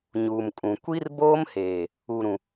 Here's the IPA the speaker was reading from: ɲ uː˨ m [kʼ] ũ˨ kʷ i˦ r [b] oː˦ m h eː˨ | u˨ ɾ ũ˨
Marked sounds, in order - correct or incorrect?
correct, correct

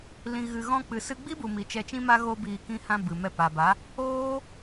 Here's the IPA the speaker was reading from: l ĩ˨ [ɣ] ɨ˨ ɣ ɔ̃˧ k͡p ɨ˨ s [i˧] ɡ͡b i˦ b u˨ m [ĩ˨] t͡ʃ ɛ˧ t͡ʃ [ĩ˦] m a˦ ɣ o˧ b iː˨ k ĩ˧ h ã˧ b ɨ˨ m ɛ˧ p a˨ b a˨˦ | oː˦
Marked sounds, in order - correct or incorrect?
correct, incorrect: ɨ˧, incorrect: i˨, correct

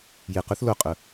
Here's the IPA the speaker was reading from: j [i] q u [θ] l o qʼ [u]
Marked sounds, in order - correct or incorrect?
incorrect: e, correct, incorrect: ʊ

